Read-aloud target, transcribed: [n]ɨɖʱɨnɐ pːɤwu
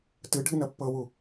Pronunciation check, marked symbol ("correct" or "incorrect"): incorrect